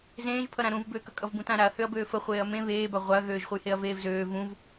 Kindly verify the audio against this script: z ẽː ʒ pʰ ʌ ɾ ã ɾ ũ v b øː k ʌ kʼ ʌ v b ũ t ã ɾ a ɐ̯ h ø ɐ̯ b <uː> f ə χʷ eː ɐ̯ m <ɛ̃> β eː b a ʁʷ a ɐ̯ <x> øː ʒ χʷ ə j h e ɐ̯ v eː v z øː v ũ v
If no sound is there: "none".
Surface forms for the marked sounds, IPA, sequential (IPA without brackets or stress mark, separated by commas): øː, ẽ, ɣ